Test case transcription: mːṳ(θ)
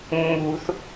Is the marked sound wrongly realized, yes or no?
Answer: no